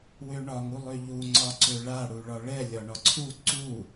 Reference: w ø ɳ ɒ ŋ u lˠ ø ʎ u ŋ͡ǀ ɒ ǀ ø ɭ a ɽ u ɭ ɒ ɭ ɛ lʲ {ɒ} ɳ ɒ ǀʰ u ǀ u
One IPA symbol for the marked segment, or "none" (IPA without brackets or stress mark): ɒ